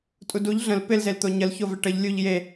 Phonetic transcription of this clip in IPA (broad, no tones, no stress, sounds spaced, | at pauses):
tʼ u d u ʎ ɮ ə̃ l p ɪ l z e l t̪ o ɲ ə l ç o v ɪ ʈ ə ʎ lʲ u ʎ j e